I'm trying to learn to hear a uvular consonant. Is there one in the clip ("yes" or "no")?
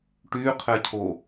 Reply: yes